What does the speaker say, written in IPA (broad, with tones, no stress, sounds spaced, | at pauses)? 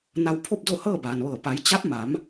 n a˧ w pʰ o˥˨ p̚ d o˥˨ h ɤː˥˨ b aː˩ n ʋ ɤː˧˩ p a˩˧ j t͡ɕ a˧˥ p̚ m a˩˧ m